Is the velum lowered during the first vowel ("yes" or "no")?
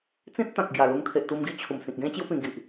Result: yes